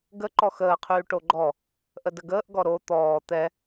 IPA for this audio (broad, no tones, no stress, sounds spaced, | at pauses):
ɡ ə ǃ ɔ x əː qʰ yː ʈ o ɡ͡ǃ ɔ | ʔ ə d ə ɡ əː ʔ ɡ ɔ ɾ o t̪ ɔː t̪ ɛ